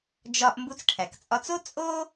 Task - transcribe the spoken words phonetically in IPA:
d͡ʒ ɒ˧ ʔ m b u˧ t͡s ʈʰ æ˩ k t͡sʼ ɒ˧ t͡s o˥ t͡sʼ o˥

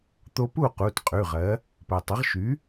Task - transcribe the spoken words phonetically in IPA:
t̪ o˧ p u˥˨ q u˩˧˩ t qʼ ʉ˩˧˩ ʁ ɜ˩˥ | p ɜ˩ tˤ ə˩˥ ʁ ʃ y˩˥

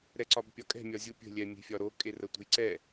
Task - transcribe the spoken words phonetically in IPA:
ɾ ɛ ǀ ɒ b pʲ ɒ kʼ ɛ̤ mʲ ɒ zʲ u pʲ ə̤ lʲ ɛ mʲ e̤ fʲ ɒ ɾ o kʼ e r ə tʷ ə̤ j ǀ ɛ

